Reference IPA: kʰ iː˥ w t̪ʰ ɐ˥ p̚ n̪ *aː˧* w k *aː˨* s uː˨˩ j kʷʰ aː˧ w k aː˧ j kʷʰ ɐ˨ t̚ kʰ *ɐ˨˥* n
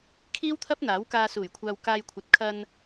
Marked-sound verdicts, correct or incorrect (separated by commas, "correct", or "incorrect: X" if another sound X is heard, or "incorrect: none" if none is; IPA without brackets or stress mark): incorrect: aː˨˥, incorrect: aː˧, incorrect: ɐ˧